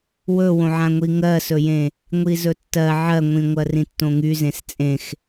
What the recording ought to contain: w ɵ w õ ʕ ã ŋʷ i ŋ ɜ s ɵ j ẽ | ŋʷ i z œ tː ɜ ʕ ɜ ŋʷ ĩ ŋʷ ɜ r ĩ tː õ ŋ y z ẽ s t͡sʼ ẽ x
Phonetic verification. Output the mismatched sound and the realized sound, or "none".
œ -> ɵ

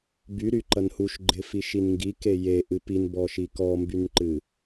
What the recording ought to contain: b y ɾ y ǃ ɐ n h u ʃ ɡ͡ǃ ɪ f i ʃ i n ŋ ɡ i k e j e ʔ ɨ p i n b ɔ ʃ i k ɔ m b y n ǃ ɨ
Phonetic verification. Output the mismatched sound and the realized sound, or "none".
none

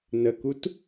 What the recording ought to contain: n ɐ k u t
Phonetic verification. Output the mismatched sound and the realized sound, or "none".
ɐ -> ə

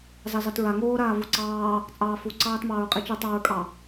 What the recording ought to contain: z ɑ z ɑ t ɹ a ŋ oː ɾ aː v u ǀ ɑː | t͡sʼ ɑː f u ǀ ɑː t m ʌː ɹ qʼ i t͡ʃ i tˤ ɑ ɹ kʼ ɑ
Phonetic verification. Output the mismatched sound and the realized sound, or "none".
ʌː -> ɑː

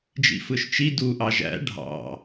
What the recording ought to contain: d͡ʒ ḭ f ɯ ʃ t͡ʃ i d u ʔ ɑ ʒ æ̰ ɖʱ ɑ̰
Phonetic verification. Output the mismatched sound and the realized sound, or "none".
none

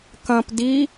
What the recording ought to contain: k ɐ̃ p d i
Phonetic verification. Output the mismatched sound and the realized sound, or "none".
none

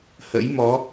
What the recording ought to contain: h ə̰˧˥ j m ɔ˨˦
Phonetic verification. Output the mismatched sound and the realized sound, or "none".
none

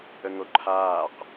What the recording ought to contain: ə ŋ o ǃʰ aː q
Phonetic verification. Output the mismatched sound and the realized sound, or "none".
none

